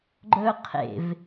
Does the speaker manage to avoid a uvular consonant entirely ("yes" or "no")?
no